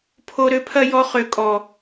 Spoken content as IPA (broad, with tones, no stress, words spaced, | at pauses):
pʰo˧ ɾø˦pʰɐ˦jɔ˧ χø˨kʼɔ˨